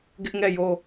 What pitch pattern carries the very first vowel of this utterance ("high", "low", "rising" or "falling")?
high